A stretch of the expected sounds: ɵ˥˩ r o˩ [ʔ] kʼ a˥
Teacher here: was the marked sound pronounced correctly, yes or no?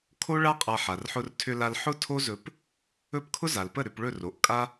yes